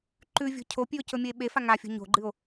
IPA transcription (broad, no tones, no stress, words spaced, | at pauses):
ǃʉvʲo̤ cʰopʲʉo̯cɵmʲɵe̯ ɓefa ŋafʲo̤ ɲo̤ɡ͡ǃɨo̯